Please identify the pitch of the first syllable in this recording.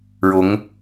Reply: rising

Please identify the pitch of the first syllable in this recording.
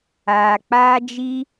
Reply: low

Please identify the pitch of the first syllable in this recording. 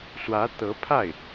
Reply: rising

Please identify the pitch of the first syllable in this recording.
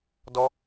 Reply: high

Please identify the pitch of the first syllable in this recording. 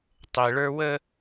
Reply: low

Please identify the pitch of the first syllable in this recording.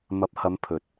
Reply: rising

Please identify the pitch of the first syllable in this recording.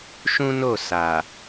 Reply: high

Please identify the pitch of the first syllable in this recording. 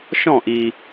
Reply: falling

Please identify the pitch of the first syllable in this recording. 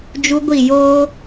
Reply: high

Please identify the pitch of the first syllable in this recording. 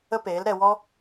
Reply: high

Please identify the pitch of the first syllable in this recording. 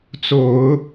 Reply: low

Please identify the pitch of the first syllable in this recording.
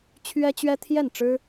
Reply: high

